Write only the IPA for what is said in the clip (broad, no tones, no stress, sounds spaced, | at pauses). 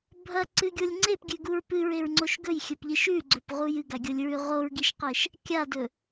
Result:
bʱ ɐ ǀ ɨ ɡʲ o lʲ ŋ͡ǀ e p ɡʲ ʉ ɡ u ɹ p ɨ ɹ e ɹ ŋ͡ǀ o ʃ ɡ ɵ j xʲ ɵ p ʎ ɨ ʃ ʉ ɡ͡ǀ ɵ p ʁ u j ɨ ɡ a ɡʲ o lʲ ɹ ʉ ʁ o ɹ ɡ i ʃ q e ʃ | kʲ a d ɵ